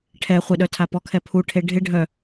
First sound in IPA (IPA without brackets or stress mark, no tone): ʈʰ